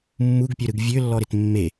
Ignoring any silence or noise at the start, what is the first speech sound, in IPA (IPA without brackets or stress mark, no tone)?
mː